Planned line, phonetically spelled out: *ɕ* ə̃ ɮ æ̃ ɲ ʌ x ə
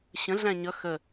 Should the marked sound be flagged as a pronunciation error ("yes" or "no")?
no